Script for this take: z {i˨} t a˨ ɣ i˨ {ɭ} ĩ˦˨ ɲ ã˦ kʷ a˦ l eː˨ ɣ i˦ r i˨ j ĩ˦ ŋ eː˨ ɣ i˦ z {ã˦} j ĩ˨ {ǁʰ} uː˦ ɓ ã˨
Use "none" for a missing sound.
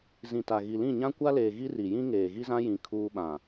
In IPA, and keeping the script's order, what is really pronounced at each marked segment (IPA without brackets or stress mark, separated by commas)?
ĩ˨, l, ã˦, kʰ